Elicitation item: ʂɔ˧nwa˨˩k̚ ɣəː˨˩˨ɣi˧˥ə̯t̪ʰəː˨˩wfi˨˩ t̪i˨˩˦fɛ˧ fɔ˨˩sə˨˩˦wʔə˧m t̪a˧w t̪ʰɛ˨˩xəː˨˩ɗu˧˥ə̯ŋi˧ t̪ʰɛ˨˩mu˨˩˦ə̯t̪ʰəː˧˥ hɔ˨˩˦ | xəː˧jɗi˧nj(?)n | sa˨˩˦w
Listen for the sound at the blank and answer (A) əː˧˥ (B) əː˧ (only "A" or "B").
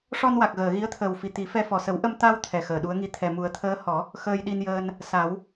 B